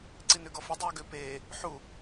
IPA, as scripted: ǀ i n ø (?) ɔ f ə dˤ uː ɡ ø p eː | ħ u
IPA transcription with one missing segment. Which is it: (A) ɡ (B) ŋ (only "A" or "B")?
A